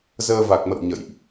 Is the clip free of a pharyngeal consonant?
yes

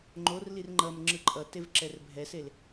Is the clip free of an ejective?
no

